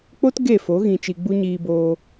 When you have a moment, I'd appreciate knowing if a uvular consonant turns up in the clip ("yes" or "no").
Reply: no